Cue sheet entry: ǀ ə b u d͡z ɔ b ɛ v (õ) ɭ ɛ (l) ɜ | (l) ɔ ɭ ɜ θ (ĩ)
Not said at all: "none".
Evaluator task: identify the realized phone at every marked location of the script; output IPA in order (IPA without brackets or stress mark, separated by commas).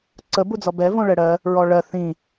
õ, ɽ, ɹ, ĩ